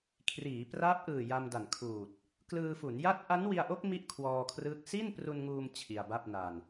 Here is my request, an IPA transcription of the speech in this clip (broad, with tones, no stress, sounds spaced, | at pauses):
kʰ r iː˩˦ p r a˦˥ p̚ ʔ ɯː˨˩ j a˧ m d a˨˩ n kʰ uː˨˩ t̚ | k l ɯː˧ f u˩˦ n j a˥˩ t̚ ʔ a˦˥ n w i˧ a̯ ʔ o˦˥ k̚ m i˥˩ ʔ kʰ w ɔː˧ kʰ r ɯː˦˥ k̚ s i˥˩ n p r u˧ n ŋ uː˧ m t͡ɕʰ i˧ a̯ b a˥˩ p̚ n a˧ n